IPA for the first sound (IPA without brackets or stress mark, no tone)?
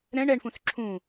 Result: ɾ